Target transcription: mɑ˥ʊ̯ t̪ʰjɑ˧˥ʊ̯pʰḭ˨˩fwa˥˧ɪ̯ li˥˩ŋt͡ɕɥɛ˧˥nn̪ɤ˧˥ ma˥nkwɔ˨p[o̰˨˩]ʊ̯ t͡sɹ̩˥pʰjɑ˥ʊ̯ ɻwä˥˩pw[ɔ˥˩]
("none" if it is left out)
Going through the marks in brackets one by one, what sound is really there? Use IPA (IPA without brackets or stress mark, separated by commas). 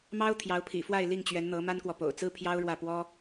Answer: o̰˨˩, ɔ˥